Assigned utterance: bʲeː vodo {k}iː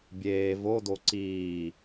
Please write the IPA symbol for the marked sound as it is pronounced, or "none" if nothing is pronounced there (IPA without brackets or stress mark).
ǀ